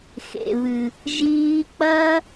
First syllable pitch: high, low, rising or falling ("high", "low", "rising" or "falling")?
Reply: low